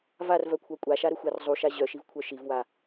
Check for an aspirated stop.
present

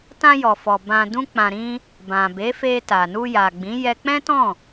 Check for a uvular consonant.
absent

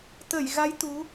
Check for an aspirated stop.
absent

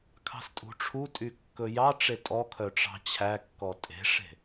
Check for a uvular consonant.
absent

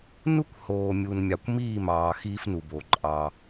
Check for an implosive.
absent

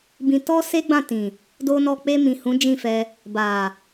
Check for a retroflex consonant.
absent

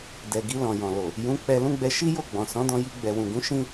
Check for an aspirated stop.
absent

